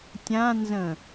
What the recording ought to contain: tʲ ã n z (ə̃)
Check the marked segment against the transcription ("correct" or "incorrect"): correct